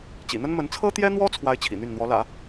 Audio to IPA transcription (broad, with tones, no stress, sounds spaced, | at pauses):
t͡ɕ ḭ˨˩ n̪ ə˥ n m ə˧˥ n t͡sʰ ɤ˥ t̪ j ɛ˥ n̪ w ɔ˥ t͡sʰ w a˥ ɪ̯ t͡ɕʰ ḭ˨˩ n̪ y˥˩ n n̪ w ɔ˧˥ l ä̰˨˩˦